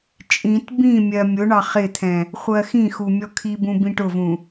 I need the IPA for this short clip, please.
t͡ʃʼ ĩ t b ĩ mʲ ɜ mʲ ʊ ɳ ɑ χ ɪ t̪ʰ ɛ̃ | χʷ ɜ x ĩ x u mʲ ɔ kʰ i b ũ b ĩ ʈ ʊ v ũ

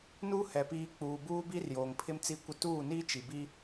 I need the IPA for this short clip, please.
n uː˦ h ɛ˨ p iː˨ k͡p uː˨ b uː˦ b i˦ r j oː˨ ŋ pʰ ɪ˦ m t͡s i˦ kʷ ɪ˦ t uː˦˨ n iː˦ t͡ʃ i˨ b i˦

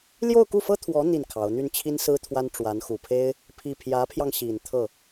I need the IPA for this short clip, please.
l j o˥˧ ʊ̯ k u˥˩ f ɤ˥ t̪ʰ w ɔ˧˥ n̪ i˥˩ n kʰ ɑ˧˥ ʊ̯ n̪ y˥˩ n t͡ɕʰ i˥ n s ɹ̩˥ t̪ʰ w a˥ n ʈ͡ʂ w a˧˥ n x u˨˩ pʰ e˥ ɪ̯ | pʰ i˥˩ pʰ j ä˧˥ pʰ j ɑ˧ ŋ ɕ i˨˩ n t̪ʰ ɤ˥˩

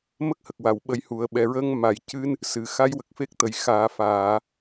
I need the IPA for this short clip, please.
m ə˦˥ k̚ h ə˨˩ k̚ w a˨˩˨ w ɓ ə˧ j h u˨˩ ə̯ ɓ ɛ˨˩ ɹ əː˧ ŋ m a˨˩˨ j c ɨ˧ n | s ɨ˨˩˨ x a˧˥ j w ə˨˩ k̚ f e˦˥ k̚ t̪ ə˨˩˨ j x aː˨˩˦ f aː˨˩˨

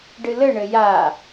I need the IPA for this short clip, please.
ɖ ɨ l ɘ ɳ ɘ j a

